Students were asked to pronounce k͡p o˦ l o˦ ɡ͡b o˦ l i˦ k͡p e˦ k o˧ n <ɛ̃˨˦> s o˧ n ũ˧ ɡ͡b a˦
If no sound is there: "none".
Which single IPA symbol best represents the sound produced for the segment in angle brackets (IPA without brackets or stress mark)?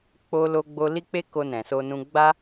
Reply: ɛ̃˨